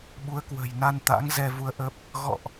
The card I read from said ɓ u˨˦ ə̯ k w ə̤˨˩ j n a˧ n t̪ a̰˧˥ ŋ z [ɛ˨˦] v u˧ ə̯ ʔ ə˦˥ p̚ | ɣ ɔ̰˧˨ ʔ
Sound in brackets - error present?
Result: yes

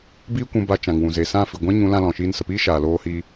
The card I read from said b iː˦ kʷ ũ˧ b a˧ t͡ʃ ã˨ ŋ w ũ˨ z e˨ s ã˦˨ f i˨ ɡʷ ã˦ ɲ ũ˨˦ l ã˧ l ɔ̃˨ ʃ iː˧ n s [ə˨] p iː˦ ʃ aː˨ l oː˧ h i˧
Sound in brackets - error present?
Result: no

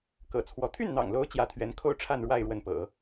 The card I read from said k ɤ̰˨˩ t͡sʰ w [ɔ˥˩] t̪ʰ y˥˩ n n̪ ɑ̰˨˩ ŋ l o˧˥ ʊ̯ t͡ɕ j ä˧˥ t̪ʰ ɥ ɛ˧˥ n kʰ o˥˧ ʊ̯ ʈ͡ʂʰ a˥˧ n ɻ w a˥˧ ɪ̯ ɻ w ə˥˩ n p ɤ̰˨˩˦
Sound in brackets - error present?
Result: yes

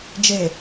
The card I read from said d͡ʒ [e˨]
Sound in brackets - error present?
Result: no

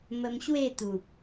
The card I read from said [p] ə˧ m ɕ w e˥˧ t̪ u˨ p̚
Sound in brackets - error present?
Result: yes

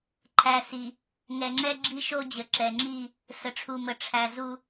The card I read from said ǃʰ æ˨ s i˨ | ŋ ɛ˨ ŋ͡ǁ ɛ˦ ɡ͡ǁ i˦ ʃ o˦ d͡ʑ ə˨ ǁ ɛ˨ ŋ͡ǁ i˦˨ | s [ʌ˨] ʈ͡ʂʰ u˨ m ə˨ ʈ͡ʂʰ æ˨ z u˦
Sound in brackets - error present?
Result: yes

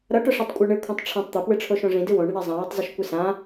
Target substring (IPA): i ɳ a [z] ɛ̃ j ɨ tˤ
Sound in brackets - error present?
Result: yes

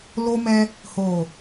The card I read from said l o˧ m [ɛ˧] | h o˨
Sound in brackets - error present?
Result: no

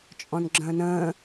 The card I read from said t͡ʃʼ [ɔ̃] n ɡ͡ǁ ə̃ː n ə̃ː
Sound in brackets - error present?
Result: no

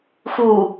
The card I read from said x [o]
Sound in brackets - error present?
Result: yes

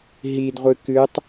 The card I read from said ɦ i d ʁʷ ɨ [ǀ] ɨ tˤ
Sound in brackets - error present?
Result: yes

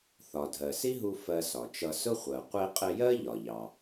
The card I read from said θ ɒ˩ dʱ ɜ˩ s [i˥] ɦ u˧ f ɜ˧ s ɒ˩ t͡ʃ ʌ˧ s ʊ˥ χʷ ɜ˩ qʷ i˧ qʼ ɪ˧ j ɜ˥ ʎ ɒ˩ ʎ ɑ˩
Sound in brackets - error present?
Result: no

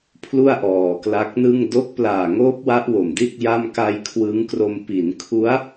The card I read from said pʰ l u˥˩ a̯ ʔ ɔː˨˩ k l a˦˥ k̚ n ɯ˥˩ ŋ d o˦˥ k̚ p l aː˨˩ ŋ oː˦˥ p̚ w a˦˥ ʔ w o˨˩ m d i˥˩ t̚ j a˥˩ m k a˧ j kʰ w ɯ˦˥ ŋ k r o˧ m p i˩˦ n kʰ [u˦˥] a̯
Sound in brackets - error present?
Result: no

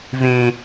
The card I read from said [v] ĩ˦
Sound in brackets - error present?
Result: no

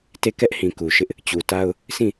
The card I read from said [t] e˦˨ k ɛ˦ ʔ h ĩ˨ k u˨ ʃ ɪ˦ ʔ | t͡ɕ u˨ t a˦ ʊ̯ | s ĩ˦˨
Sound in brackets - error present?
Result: no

